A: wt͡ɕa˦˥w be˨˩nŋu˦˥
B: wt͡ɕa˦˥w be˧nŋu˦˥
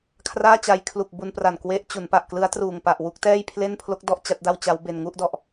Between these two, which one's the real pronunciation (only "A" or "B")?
B